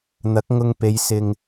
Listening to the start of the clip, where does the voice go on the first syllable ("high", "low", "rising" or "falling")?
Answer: rising